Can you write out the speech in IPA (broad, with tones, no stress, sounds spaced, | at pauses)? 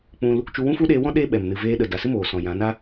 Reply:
k͡p ũ˧ l | t͡ʃ u˧ w ũ˦ f u˦ ɗ eː˧ w ɔ̃˦ ɗ eː˧ ɓ ɛ˨ m n ɨ˨ v eː˧ ɗ ə˨ d a˨ s ɨ˦ m oː˨ s ɔ̃˨ j ã˨˦ n a˦